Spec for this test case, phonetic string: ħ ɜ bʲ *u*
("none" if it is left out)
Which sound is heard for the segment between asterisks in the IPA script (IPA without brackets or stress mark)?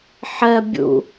ṵ